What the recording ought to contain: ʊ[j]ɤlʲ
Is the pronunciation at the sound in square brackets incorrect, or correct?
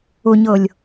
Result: incorrect